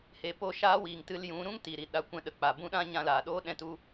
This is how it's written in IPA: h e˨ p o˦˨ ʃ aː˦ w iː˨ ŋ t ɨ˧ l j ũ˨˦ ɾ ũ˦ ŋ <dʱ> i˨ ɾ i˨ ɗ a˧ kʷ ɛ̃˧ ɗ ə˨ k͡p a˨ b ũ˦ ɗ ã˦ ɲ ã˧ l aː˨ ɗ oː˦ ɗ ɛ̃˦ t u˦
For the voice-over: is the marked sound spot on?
no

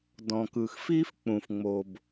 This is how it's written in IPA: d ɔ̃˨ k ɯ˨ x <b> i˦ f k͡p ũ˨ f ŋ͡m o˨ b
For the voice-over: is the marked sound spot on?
no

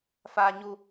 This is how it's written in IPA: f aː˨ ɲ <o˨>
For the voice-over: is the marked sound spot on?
no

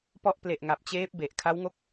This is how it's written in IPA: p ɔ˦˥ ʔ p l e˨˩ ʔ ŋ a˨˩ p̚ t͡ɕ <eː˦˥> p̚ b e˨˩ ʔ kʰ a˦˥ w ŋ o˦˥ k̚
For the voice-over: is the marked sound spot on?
yes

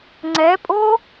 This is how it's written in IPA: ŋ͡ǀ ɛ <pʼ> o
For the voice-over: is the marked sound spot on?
yes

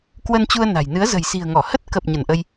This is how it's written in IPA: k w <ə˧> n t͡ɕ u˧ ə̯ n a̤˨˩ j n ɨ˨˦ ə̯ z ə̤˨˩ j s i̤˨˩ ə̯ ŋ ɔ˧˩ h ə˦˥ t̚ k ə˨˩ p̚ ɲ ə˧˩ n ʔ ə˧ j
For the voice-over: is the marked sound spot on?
yes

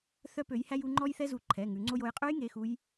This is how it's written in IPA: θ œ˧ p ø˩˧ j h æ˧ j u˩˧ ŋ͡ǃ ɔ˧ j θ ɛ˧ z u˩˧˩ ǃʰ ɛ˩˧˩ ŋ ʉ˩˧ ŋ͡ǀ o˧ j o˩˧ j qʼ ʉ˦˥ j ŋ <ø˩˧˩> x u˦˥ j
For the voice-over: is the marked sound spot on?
no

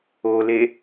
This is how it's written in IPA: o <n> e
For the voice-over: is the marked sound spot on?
no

